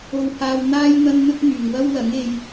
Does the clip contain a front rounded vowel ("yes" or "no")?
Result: yes